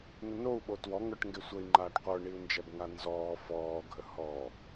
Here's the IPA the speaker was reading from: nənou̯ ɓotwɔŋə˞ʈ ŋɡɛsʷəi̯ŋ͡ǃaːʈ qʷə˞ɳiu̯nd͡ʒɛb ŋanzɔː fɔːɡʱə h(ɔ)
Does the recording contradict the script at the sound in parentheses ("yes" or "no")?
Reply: no